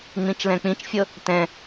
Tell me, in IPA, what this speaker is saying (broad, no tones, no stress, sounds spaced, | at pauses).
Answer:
ŋ͡m ĩ t͡ʃ l ɛ̃ k͡p ĩ t͡ʃ fʲ ɤ | t ɛ̃